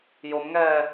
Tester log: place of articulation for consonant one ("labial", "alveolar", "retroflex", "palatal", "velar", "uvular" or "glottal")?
palatal